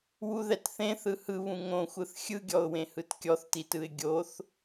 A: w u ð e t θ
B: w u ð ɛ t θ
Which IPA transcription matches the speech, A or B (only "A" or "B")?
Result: B